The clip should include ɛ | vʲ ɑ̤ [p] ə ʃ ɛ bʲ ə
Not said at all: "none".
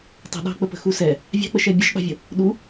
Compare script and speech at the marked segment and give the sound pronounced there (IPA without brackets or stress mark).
k͡p